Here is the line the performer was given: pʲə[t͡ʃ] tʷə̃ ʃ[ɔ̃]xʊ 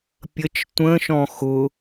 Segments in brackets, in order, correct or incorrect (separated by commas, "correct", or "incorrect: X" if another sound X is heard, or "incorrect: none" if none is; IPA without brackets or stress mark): correct, correct